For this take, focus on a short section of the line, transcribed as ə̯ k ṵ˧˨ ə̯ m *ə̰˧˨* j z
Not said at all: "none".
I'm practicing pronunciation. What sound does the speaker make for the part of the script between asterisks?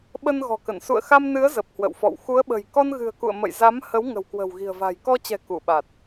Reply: ə̰˧˨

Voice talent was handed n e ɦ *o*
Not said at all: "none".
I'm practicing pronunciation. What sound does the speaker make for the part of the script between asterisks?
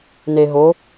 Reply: o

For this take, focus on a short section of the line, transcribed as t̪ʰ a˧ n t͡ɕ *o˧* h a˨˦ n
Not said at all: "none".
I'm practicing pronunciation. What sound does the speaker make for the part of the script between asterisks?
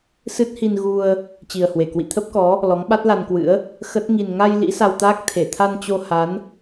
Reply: o˧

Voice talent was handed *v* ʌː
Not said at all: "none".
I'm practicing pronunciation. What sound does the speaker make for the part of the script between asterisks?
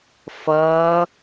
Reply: f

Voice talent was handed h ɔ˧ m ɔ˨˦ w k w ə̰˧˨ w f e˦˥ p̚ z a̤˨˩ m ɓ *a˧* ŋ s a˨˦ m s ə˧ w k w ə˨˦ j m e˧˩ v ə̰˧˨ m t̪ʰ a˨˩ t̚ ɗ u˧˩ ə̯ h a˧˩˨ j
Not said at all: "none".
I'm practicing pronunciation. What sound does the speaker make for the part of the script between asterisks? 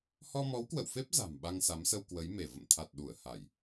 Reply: a˧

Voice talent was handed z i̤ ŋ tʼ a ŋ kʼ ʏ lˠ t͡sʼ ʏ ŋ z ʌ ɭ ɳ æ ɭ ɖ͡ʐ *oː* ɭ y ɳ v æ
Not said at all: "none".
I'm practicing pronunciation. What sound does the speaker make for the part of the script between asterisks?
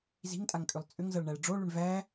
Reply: o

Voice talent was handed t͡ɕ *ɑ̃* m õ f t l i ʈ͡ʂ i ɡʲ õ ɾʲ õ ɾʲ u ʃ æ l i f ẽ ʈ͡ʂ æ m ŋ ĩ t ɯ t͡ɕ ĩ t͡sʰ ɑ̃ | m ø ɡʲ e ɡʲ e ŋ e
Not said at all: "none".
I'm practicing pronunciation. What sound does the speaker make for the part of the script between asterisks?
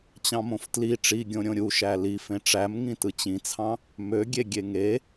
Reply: ɑ̃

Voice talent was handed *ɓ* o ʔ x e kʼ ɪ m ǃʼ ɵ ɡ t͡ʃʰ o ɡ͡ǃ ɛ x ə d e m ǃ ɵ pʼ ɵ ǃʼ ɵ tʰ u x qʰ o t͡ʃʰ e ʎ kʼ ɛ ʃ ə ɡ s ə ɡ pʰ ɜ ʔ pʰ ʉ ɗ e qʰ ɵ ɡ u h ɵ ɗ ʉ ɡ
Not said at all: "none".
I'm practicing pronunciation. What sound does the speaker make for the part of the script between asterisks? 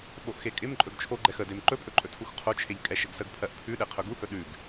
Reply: ɓ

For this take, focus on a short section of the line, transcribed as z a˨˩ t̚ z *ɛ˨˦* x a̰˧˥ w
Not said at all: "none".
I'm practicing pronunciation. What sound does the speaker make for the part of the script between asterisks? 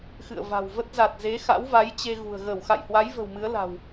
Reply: e˨˦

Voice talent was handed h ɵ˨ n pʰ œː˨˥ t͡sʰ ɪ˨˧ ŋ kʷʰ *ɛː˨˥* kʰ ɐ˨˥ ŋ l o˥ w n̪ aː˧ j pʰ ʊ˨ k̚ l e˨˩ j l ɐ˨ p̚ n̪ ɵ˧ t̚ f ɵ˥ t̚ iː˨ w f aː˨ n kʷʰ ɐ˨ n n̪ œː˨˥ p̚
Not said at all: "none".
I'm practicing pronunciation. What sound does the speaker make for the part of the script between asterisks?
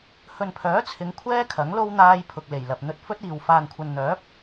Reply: ɛː˥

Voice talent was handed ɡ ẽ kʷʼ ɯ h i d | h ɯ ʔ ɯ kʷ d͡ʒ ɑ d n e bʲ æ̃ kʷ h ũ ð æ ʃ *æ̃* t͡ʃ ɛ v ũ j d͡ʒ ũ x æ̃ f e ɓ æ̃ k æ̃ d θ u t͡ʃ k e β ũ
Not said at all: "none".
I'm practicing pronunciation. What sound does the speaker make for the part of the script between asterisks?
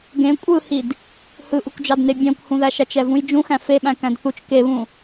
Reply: æ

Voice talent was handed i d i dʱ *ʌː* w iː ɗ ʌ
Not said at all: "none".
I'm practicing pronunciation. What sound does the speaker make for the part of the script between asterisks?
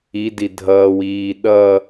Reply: ʌː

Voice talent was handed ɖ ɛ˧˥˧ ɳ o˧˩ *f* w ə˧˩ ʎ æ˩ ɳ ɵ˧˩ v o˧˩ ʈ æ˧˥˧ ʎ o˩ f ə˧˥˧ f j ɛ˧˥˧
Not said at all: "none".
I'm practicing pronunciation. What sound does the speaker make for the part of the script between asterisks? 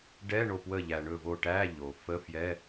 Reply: p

